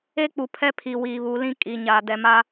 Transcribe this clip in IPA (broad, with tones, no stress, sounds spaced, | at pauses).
e˦ k͡p u˨ pʰ ɛ˦ pʰ i˨ w iː˨ β u˨˦ l ĩ˦ kʼ i˨ ɲ aː˨ d ɛ˨ m a˦